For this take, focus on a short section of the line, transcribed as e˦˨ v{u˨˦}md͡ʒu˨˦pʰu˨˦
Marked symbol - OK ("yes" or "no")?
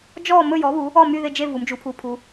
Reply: yes